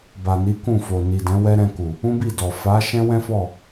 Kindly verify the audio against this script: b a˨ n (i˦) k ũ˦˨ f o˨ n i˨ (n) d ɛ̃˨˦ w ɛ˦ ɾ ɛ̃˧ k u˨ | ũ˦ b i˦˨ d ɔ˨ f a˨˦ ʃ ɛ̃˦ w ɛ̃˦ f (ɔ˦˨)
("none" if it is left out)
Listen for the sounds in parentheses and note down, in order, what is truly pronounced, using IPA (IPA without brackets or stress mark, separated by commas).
i˨˦, none, ɔ˦˨